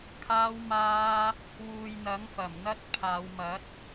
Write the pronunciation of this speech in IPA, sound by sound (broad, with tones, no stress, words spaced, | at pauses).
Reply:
kʰaː˧wmaː˧ | wuː˨jn̪ɐ˨˥ŋfɐ˨˩mn̪ɐ˥t̚ pʰaː˨˧wmɐ˨˥t̚